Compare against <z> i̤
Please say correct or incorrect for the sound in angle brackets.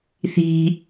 incorrect